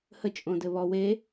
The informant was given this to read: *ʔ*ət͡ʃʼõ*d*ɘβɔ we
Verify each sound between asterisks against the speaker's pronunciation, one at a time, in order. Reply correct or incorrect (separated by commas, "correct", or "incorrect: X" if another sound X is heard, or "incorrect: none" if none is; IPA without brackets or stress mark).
incorrect: h, correct